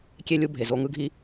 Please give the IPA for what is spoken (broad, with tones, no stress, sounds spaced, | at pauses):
kʲ e˧ lʲ u˧ bʱ e˨ z o˧ ŋ ɯ˦ ɡʱ i˦